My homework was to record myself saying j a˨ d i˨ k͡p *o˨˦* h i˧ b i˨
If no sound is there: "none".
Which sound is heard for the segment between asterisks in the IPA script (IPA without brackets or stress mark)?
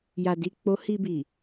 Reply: o˨˦